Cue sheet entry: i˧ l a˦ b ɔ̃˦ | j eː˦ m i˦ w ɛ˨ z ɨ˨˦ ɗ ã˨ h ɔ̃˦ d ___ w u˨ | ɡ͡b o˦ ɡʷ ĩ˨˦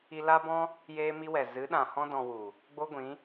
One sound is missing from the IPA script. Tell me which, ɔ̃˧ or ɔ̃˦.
ɔ̃˧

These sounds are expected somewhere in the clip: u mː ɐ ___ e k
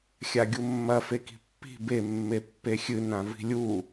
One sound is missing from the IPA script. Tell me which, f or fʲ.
f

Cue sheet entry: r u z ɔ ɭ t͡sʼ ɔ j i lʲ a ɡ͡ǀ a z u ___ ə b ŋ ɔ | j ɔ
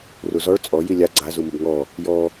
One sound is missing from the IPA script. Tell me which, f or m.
m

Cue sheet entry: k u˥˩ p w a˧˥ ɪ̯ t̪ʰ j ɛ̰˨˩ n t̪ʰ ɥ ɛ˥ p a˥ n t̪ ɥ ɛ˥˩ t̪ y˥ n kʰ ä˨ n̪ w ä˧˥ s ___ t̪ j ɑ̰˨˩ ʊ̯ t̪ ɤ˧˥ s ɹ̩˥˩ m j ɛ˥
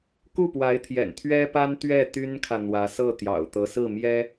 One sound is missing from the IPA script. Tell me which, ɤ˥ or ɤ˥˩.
ɤ˥˩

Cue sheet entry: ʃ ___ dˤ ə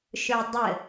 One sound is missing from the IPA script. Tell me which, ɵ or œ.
ɵ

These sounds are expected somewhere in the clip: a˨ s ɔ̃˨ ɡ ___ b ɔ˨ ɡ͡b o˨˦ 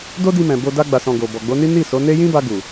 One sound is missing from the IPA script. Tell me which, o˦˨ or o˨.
o˨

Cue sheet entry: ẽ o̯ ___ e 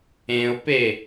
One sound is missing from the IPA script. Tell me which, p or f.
p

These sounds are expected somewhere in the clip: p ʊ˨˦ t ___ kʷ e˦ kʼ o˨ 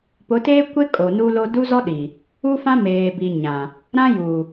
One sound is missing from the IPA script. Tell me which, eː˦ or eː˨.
eː˦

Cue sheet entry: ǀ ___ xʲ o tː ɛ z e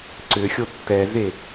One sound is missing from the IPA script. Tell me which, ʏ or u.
ʏ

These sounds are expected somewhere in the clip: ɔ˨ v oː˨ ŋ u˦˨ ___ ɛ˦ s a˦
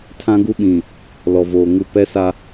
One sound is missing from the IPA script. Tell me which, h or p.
p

